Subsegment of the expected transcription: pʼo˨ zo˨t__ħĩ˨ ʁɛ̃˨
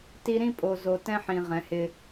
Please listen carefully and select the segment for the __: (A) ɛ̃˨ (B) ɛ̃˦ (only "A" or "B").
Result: B